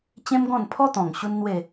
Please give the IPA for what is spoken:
t͡ɕ ẽ˦ m ɡ ɔ̃˥˧ n pʰ ɔ˦ t̪ ɔ̃˨˩ ŋ ɕ u˦ n n̪ w e˥˧

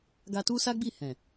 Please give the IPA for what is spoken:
ɡ a˧ t u˦ s a˦ ɡ͡b i˦˨ h ɛ̃˨

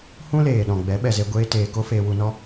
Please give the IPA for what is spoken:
h ũ˦ l eː˨ ɗ ɔ̃˨ ɡ͡b ɛ˨˦ ɓ ɛ˨ z e˧ ɡʷ eː˦ t eː˧ k o˦ f eː˧ w u˧ n ɔ˦

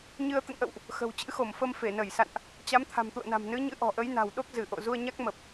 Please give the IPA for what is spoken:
ɲ ɨ˧ ə̯ t̪ ə̰˧˨ n ʔ ə̰˧˨ w ʔ | x ə̤˨˩ w t͡ɕ ɨ̰˧˥ x o˧˩ m f ə˧ m f e˧˩ n ə˧˩ j s a̰˧˨ n ʔ | t͡ɕ a˨˦ m t̪ʰ a̤˨˩ m t̪ ṵ˧˨ ə̯ n a̤˨˩ m n ɨ˨˦ ɲ ɨ̰˧˥ ʔ ɔ̤˨˩ ʔ ə˨˦ j n a̤˨˩ w ɗ o˦˥ k̚ z ɨ˧˩ ʔ o̰˧˨ z u˧ ə̯ ɲ a˦˥ k̚ m ə˨˩ p̚

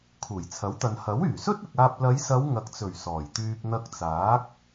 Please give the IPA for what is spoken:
kʰ uː˨˩ j t͡sʰ ɐ˨˥ w t̪ ɐ˨ n h ɐ˨˥ w yː˨˩ s ɵ˥ t̚ ɪ˨ k̚ aː˧ p̚ l ɐ˨˧ j s ɐ˨˧ w ŋ ɐ˨ k̚ t͡s ɵ˨˩ ɥ s ɔː˨˩ j t̪ yː˧ p̚ n̪ ɐ˧ k̚ t͡s aː˨˥ k̚

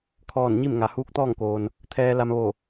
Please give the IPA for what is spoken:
kʰ ɔː˧˩ n ɲ i˥˨ m ŋ a˩ h uː˧˥ k̚ t̪ ɔː˥˨ ŋ k oː˩ n | t̪ʰ ɛː˧ l a˧ m ʋ o˧˩

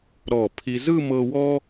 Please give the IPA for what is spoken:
ɾ ɔ˧˩ pʰ i˧ z ɯ˥˧ m ɤ˧ w ɔ˥

